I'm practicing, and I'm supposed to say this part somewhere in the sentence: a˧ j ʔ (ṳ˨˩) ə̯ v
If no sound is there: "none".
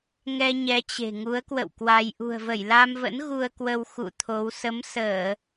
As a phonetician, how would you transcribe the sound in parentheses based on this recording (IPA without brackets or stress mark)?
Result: ṳ˨˩